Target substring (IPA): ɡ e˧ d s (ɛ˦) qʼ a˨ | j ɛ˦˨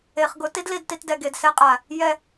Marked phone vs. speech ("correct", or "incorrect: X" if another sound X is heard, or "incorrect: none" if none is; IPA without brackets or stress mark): correct